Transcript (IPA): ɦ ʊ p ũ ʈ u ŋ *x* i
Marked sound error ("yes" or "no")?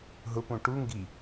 yes